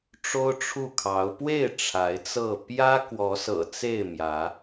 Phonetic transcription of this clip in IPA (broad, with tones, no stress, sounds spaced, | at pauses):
ʈ͡ʂ o˦ ʊ̯ ʈ͡ʂʰ u˥˨ kʰ ɑ˨˦ ʊ̯ p w e˥˨ ɪ̯ ʈ͡ʂʰ a˨˦ ɪ̯ t͡s ɤ˥˨ p j ä˦ k w ɔ˨˦ s ɤ̰˨˩ t͡s e˥˨ ɪ̯ m j ä˨˦